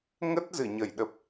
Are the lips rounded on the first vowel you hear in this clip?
no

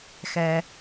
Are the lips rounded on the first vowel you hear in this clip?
no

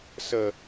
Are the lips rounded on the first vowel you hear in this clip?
no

